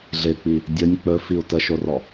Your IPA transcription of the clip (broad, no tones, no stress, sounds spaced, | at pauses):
ɮ ɪ k͡p i | dʲ ɵ nʲ k͡p ɵ f i u̯ t ə ʃ o r ɔ